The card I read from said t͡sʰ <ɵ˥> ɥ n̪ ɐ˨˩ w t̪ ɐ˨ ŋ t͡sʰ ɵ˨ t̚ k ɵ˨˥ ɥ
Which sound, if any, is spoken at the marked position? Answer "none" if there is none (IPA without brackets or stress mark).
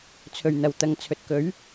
ɵ˨˩